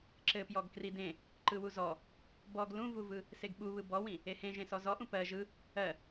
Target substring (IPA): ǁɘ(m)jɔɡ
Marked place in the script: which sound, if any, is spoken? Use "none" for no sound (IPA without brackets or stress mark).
p